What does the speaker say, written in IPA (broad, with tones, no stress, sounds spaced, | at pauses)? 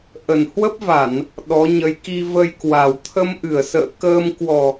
ʔ ə˨˩ n h w ə˦˥ p̚ v a˧˩˨ n | ɗ ɔ˨˦ ɲ ə˨˦ j k i˧ v ə˧ j k w a˨˩ w t̪ʰ ə˧ m ʔ ɨ˧˩ ə̯ s ə̰ː˧˨ k əː˧ m k w ɔ˨˩